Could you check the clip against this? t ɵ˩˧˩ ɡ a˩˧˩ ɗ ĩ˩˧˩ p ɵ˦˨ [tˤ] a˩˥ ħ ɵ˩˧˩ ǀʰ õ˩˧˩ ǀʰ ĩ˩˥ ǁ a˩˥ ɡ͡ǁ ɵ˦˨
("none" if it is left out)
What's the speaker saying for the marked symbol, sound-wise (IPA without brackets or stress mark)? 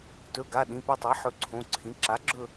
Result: tˤ